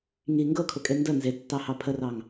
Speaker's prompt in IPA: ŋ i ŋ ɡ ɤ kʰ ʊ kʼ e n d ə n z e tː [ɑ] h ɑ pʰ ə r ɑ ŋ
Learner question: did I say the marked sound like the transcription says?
yes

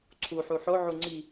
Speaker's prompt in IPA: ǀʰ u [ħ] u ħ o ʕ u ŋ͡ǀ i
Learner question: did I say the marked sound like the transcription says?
yes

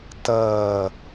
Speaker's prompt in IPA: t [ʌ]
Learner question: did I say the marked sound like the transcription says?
yes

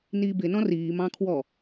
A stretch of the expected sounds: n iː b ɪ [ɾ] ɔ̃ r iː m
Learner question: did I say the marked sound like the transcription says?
no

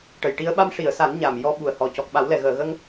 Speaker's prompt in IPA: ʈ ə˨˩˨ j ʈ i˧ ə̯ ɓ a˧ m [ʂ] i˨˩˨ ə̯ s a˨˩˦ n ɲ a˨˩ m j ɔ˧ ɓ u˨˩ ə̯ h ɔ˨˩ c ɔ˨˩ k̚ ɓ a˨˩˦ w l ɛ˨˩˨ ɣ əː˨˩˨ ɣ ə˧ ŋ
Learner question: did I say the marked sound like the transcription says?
yes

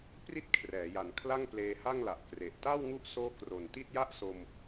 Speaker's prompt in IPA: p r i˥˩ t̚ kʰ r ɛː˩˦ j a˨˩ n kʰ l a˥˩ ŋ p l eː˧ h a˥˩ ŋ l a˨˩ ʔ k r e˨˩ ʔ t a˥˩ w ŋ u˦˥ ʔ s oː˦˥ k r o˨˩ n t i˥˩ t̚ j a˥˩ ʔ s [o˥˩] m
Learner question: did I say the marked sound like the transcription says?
no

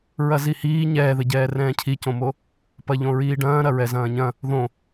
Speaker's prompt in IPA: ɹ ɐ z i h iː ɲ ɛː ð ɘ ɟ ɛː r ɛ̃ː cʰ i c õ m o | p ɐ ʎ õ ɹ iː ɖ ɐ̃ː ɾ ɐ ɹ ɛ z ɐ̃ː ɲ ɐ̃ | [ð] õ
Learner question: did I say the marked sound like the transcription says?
yes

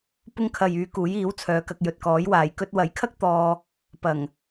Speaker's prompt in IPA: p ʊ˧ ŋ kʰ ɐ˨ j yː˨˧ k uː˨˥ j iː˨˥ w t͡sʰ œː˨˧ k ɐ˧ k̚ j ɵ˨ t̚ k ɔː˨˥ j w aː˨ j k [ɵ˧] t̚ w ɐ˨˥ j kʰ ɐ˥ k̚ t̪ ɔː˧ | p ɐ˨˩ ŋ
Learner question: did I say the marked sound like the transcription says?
yes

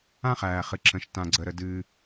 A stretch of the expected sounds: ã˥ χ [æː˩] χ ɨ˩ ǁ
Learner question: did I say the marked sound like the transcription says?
yes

